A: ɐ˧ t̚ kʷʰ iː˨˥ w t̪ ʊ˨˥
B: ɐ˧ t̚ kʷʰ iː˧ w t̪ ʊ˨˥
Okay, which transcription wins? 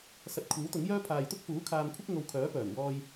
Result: A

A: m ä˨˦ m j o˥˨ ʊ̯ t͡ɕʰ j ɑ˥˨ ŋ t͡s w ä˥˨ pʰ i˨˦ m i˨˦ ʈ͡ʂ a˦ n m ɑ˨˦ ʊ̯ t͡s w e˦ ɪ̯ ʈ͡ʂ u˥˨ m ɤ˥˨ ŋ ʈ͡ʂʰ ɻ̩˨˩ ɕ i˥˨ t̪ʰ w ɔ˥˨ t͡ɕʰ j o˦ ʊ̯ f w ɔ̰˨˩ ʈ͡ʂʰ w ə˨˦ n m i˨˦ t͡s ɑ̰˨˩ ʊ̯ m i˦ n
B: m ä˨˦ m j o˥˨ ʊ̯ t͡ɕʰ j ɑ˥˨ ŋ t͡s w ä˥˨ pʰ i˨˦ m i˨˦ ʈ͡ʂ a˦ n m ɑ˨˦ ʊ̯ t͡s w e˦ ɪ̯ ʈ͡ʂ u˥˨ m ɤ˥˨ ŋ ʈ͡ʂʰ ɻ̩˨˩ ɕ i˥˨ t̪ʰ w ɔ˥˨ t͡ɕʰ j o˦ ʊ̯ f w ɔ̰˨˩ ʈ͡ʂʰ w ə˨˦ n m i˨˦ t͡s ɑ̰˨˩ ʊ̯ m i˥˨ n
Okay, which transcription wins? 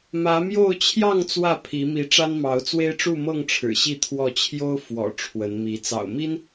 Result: A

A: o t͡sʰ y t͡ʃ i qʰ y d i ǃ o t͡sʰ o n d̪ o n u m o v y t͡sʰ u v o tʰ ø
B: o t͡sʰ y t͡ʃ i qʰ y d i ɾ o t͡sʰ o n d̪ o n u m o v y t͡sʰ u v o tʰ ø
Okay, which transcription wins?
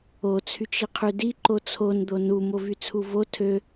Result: A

